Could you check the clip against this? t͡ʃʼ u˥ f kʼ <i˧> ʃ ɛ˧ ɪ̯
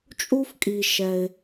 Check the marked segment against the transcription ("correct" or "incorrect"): correct